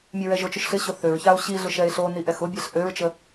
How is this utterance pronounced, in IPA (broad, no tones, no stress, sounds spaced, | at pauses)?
mʲ ɛ ɹ ɛ ʒ o t͡ʃ ʊ ʃ ɬ ɪ ɕ ʊ θ ø ɹ ç a o̯ ɕ i ɮ ʊ ʃ ɛ e̯ ɬ o n i ʔ ɛ x ʊ bʲ ɛ ɬ ʔ ø ɹ t͡ʃ ə